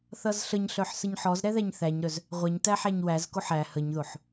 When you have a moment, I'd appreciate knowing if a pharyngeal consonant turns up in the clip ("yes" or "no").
yes